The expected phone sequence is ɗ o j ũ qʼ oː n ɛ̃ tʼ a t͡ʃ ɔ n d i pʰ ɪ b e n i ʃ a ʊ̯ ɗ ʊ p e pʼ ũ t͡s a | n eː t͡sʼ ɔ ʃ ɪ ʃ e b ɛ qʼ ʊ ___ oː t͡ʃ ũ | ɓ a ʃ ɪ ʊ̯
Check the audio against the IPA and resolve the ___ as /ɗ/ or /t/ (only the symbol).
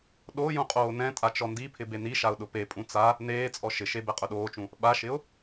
ɗ